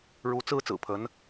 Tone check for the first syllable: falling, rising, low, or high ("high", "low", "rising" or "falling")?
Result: rising